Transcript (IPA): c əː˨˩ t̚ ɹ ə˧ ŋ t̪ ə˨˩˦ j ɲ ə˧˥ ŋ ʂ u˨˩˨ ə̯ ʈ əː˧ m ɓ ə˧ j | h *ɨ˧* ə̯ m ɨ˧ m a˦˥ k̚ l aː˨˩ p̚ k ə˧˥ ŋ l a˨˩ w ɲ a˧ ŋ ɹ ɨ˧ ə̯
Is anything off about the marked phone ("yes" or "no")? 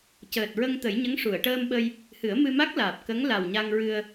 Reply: yes